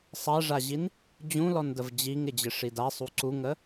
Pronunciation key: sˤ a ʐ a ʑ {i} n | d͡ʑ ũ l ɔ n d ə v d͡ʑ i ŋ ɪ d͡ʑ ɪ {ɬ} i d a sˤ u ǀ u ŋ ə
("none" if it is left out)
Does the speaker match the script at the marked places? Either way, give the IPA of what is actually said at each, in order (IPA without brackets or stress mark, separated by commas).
i, ʂ